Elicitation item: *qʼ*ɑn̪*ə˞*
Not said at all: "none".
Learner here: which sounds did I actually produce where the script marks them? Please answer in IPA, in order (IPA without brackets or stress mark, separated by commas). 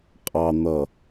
qʼ, ʌ